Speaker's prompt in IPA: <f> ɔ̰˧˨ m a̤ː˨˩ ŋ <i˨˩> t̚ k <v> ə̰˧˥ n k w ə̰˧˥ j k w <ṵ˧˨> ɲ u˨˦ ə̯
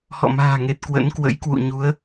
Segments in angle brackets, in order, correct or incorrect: incorrect, incorrect, incorrect, correct

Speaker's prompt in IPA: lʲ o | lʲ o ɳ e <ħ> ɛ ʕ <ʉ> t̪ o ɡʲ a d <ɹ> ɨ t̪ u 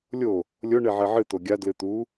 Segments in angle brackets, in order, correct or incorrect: incorrect, incorrect, incorrect

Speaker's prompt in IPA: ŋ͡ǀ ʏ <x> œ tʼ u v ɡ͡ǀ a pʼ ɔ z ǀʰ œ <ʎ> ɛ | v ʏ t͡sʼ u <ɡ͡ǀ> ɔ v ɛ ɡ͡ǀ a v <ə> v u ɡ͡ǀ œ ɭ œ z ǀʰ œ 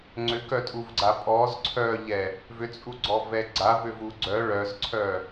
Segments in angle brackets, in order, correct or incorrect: incorrect, correct, correct, incorrect

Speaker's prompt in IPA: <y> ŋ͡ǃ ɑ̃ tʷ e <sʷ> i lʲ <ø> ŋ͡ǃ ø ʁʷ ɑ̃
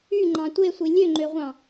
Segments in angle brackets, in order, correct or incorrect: correct, correct, correct

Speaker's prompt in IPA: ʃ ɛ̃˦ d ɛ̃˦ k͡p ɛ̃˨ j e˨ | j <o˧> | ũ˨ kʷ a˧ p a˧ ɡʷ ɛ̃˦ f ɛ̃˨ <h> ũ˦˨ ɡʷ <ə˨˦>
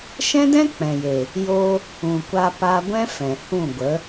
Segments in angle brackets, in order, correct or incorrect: correct, correct, correct

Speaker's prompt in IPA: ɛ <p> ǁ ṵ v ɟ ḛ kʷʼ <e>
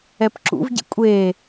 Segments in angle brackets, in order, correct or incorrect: correct, correct

